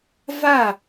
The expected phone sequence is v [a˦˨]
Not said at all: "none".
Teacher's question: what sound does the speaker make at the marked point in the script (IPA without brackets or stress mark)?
a˦˨